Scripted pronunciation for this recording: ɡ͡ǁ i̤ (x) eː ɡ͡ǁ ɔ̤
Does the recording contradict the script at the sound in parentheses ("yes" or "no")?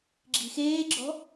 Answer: no